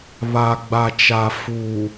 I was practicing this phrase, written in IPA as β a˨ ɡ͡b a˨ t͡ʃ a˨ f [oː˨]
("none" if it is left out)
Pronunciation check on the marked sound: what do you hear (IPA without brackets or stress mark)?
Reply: uː˨